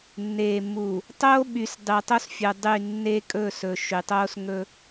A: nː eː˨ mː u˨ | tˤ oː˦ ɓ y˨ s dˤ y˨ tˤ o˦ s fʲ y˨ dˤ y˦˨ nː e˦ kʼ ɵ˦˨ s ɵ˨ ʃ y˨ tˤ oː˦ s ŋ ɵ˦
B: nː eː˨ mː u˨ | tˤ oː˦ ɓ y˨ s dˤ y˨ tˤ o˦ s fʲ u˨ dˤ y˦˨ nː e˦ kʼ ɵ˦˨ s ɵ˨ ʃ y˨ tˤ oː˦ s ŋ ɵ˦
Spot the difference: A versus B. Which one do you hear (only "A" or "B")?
B